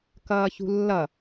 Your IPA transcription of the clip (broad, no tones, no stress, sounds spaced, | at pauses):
k ʌː ç ṳ lː ʌ